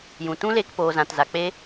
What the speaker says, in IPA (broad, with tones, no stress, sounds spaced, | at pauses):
j ũ˨ t ũ˦ l e˧ k p oː˧ z ã˧ t z a˧ k͡p e˦